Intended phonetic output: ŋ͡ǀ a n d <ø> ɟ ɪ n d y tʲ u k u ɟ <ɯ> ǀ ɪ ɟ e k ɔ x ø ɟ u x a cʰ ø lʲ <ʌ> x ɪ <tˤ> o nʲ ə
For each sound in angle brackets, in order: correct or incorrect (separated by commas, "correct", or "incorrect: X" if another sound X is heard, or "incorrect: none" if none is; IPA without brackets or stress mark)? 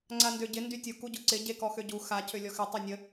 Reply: correct, incorrect: ʊ, incorrect: ɔ, correct